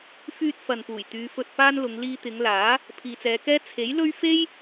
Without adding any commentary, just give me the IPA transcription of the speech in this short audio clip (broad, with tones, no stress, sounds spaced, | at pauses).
f yː˧ t̚ f ɐ˨ n p uː˨˩ j t̪ yː˨˧ f ɵ˧ t̚ p aː˥ n l ʊ˨˧ ŋ l iː˧ t̪ ɪ˨˧ ŋ l aː˨˥ | pʰ iː˨ t͡s ɛː˨˧ k ɛː˥ t͡sʰ e˨˥ j l ɵ˥ ɥ f e˥ j